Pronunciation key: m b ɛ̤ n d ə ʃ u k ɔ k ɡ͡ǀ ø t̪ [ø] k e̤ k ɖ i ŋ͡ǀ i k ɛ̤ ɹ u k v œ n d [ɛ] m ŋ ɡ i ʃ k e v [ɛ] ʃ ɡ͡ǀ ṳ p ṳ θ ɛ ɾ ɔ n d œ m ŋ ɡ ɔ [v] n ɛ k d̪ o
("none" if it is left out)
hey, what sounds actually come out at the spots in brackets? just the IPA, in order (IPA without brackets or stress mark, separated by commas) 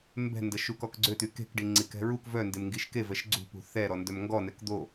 y, e, ɛ, none